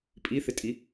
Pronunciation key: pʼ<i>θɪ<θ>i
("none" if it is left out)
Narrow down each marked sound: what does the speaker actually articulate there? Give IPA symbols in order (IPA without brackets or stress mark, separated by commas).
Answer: i, tʼ